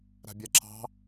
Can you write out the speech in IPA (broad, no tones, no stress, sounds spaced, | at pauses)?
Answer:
ɾ a̤ bʲ a ǁ ɑ̤